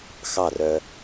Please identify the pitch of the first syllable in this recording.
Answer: falling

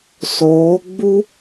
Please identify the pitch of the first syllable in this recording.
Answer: rising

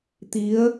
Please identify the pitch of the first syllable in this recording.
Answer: rising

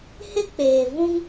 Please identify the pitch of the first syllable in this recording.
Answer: high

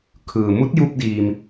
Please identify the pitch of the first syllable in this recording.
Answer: low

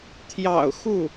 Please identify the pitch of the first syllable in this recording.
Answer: low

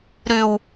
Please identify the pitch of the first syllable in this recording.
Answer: low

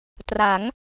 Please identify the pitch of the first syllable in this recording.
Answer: rising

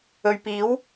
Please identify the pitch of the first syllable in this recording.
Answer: low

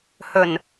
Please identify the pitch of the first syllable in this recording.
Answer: low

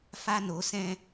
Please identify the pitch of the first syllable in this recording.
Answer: high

